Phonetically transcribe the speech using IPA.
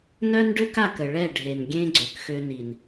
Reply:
nœ˦nɖø˦ka˦˨kə˨ ɭɛ˦˨ɖʱe˨nɡʲẽ˦ ɡ͡ǀø˨kxø˦ni˨n

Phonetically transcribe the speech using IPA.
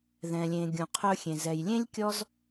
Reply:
ðɛ̃˨lʲẽ˨ ɡʲũ˨qʰɵ˧xʲẽ˨ zɛ˨jlʲẽ˦lʲ kʲɔ˦z

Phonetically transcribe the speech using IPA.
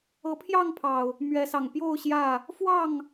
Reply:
ɤ˨˦pʰjɑ˥˨ŋpʰɑ˨˩ʊ̯ | mɥɛ˨˦sɑ˨˩ŋ pjo˥˨ʊ̯ɕjä˥˨ | fwɑ˥˨ŋ

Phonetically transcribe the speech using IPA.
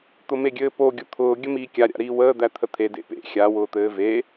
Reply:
t̪ʊmeɡʲɘːpo ɡʲʊt̪ʰʊː ɡʲəmiːkʲa ɾʲa̰ɾiːwəː d̪æt̪ʰət̪ʰe dḛpḛ xʲa wʊːt̪ɘːve

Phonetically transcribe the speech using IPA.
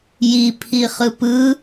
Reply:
jipʰi χɯpɯ

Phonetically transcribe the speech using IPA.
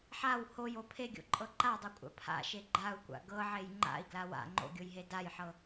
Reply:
ħaw hojo pʰeɡʲo̰ǃʼɤ ǃadˤokʷʼa̰ pʰa̰ʃe ɡ͡ǃau̯kʷa̰ ɡɤʕej ŋ͡ǃa̰i̯ɡla wa̰ ŋ͡ǃo̰ɡʲojɦe dajħɤ

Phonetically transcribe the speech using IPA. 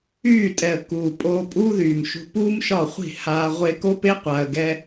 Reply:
yː˦˨tʼɛ˨ə̯kuː˨ pʼoː˧pʼuː˦ðyː˨mʃṳ˧ puː˦mʃɒ˦˨χʷi̤˦˨ haː˧ ʁʷe˧ko˦pe˦ qʷa˧ə̯ɡɛ˦

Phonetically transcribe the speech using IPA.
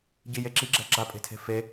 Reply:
ɟije ǁiɡ͡ǁɛ̤ ɡ͡ǁapʼe̤tʰe̤ fe

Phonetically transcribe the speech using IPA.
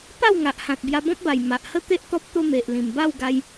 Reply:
pa˥˧wŋa˨ʔhã˨t̚ bja˧bɔ̃˦p̚ba˨˩j ma˨ʔhə˥˧t̪e˦ʔ t̪ɔ˦p̚t̪o˦me˨ʔ lĩ˨˩mba˥˧wɡa˧j

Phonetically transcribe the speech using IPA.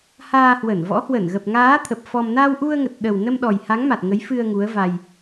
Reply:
haː˧hwə˧˩nvɔ̰˧˥ hwə˧˩nɣə˨˩p̚ŋaː˨˦ t̪ʰə˨˩p̚fɔ˧m na˧wʔu˧ə̯ŋə˨˩t̚ ɗə˨˩wnə˧mɗɔ˨˩j ha˨˦ŋma˨˩t̚ ŋə˨˦jfɨ˧ə̯ ŋu˨˦ə̯va˧j

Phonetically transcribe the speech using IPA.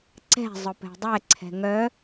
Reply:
ǀɛ̤ zˤʊpɛ̤dˤɛ ǀʰɛ̤ŋœ

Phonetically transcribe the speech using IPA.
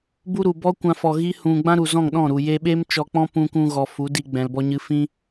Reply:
bu˦ɾu˨ bɔ˦kʷã˧fɔ˨ ɣi˦ hũ˧ ɡ͡bã˦ɾu˨zɔ̃˦˨ŋɗɔ̃˦˨ ɾu˨ je˧ɓe˦mt͡ʃɔ˧k͡pɔ̃˦ pũ˧kũ˧ɣɔ˨ fu˨˦di˧ ɡ͡bɛ̃˨lbɔ˧ɲɨ˧ fĩ˦

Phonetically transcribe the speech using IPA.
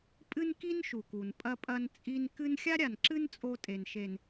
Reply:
pʼɨ˦nki˦nʃu˨ku˨n pʼɐ˦pʼɐ˦nt͡sʼi˦n kɨ˦n xʲa˦ɾʲa˨nǁɨ˦n t͡sʼo˦tʼe˨nʃe˨n

